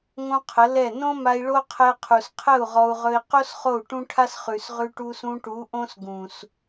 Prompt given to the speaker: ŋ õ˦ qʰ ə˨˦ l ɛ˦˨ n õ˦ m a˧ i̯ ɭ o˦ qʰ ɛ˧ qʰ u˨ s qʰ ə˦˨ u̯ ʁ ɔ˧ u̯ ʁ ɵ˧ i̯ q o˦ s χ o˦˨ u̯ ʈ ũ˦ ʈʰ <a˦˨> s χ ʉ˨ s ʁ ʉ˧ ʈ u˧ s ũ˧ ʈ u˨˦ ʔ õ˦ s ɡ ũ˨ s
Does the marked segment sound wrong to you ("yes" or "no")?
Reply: yes